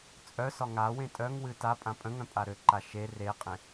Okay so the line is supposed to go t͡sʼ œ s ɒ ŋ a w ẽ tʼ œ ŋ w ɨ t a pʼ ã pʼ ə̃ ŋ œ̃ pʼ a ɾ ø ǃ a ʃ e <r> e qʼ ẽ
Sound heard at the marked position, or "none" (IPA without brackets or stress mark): r